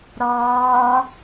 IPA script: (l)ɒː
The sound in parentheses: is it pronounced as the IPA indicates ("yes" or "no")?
no